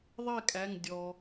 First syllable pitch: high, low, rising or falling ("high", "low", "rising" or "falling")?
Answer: falling